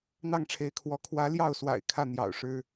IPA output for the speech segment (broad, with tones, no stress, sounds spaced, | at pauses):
n̪ ɑ˥˩ ŋ ʈ͡ʂʰ e˧˥ ɪ̯ kʰ w ɔ˧˥ kʰ w ä˧˥ l j ɑ˥˩ ʊ̯ s w a̰˨˩ ɪ̯ kʰ ä˥˩ n̪ j ɑ̰˨˩ ʊ̯ ʂ ɻ̩˥